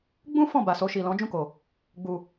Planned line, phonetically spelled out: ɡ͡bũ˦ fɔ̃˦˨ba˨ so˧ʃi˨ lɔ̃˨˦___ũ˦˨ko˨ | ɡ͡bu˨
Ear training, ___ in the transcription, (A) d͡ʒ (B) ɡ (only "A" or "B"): A